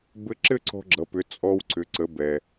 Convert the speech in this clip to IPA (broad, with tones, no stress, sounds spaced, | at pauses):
b ɘ˧˥ ǁ ɘ˥ ǀ ɔ̤˧ ɡ͡ǁ ʌ˩˧ p ʏ˩˧ t͡sʼ ɔ˧ w ǀ ʏ˩˧ ǀ ə˩˧ b ɛ˩